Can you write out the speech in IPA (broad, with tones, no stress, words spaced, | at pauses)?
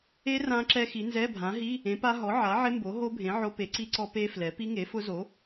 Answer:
e˦˥ rã˦˥ ǁɛ˦˥xi˩˥ nzɛ˧˥˧bʱã˩˥ɦi˧˥˧ | ẽ˩˥pa˦˥ ɦɔ˩˥ʕa˩˥ ʕɪ˦˥mbo˩˥ ɦo˦˥bʱẽ˩˥ ʕo˦˥ pe˩˥ǀi˦˥ǀɔ˦˥ pe˦˥ flɛ˩˥ pi˦˥ŋe˩˥fʊ˦˥zo˩˥